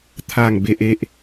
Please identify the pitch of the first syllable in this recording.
falling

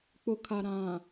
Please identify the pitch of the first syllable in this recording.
low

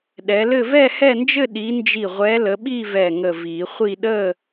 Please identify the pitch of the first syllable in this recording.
rising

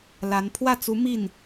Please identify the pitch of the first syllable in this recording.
rising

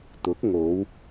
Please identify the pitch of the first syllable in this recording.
rising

